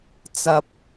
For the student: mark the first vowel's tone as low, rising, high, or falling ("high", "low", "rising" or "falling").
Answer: low